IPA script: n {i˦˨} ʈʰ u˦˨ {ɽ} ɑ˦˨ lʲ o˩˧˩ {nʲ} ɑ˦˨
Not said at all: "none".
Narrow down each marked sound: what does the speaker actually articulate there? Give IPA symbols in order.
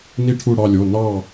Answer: i˦˨, ɽ, n

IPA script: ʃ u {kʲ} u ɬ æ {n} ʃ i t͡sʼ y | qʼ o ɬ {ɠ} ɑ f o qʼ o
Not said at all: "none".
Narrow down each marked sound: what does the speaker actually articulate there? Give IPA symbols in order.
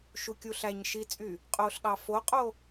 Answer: kʲ, ɲ, ɠ

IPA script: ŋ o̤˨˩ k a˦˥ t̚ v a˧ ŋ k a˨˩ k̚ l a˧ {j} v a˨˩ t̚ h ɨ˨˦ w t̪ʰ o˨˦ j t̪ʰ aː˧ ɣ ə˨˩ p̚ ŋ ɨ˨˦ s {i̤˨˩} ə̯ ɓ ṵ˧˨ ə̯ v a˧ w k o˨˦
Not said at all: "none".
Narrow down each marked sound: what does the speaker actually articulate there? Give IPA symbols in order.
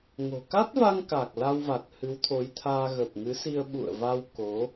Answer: w, i˧

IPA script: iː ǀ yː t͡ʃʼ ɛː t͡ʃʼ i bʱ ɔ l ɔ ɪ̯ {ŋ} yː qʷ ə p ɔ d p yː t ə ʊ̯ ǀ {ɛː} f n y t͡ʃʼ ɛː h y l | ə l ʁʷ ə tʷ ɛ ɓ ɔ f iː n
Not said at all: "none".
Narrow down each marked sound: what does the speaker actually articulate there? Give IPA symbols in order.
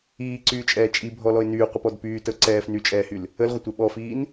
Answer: n, ɛː

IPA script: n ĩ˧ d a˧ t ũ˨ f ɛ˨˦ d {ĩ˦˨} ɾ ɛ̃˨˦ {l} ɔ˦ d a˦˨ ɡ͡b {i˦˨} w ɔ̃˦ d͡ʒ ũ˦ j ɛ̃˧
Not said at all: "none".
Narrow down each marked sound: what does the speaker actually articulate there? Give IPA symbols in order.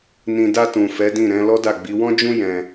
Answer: ĩ˦˨, l, i˨˦

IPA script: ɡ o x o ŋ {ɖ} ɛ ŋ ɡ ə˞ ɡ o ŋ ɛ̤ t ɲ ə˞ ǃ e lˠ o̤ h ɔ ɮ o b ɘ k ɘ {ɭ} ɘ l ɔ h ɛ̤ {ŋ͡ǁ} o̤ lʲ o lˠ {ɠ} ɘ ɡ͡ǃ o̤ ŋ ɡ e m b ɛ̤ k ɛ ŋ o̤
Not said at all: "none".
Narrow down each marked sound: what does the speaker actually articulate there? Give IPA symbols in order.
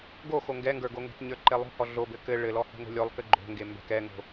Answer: ɡ, ɭ, ŋ, k

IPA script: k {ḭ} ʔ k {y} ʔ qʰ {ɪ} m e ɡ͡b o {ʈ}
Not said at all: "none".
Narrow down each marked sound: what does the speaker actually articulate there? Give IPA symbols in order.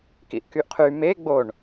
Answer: ḭ, y, y, ɳ

